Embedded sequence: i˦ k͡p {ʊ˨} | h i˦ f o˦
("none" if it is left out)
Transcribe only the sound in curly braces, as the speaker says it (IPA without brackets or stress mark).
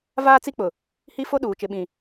ʊ˨